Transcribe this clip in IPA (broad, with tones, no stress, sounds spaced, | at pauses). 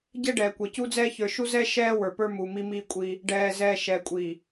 ɟ ɛ˦ ɖ ɛː˨ kʷ ɛ˨ c u˦ d͡z ɛː˦ ç ə˞˨ ʃ u˦ z ɛː˦ ʃ ɛː˦ w ə˞˨ p ə˞˦ m u˨ m i˦ m iː˦ kʷʼ i˦ | ɖ ɛː˨ z ɛː˨ ʃ ɛː˨ kʷʼ i˨